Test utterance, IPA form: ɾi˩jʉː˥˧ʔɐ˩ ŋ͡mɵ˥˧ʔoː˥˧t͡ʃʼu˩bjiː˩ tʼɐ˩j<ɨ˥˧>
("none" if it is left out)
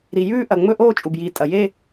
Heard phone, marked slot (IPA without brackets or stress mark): e˥˧